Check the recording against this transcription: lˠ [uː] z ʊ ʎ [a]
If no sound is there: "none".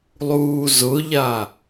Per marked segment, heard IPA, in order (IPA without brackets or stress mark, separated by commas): uː, a